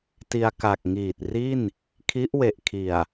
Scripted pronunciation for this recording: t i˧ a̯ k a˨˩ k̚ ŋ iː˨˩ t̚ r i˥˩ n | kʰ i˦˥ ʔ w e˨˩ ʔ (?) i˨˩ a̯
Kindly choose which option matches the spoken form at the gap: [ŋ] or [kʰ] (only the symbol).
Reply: kʰ